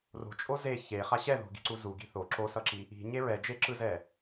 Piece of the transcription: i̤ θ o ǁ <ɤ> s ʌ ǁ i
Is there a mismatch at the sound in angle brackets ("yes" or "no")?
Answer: yes